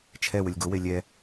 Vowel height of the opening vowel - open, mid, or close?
mid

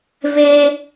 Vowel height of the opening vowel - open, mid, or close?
mid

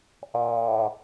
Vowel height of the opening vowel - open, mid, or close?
open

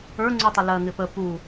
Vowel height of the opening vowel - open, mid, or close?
mid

